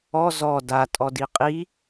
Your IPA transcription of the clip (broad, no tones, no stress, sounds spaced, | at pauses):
ɔ z ɔ d a tʼ ɔ d i qʼ i